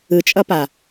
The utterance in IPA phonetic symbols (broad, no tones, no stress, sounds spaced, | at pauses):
ɯ t͡ʃʼ ʌ p a